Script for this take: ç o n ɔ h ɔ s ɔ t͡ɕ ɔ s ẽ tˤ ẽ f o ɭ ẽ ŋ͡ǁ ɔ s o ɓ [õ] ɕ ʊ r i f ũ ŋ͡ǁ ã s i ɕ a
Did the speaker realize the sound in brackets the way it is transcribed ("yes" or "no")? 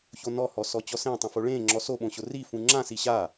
yes